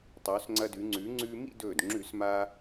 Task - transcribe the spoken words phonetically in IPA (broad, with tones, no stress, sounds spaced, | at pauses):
tˤ ɵː˩˧ s ŋ͡ǀ ɐ˧ d ʉ˩˧ ŋ͡ǀ ʉː˩˧ ŋ͡ǀ ʉː˧ m ḭ˥˧ d ɵː˧˩ d ŋ͡ǁ ʉ˧˩˧ s m a˧